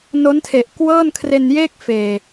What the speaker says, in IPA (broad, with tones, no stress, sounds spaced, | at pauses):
n o˦˥ n tʰ e˨˩ ʔ k w ɤː˥˩ n kʰ r e˧ n j eː˥˩ k̚ f eː˨˩